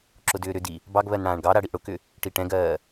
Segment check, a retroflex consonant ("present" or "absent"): present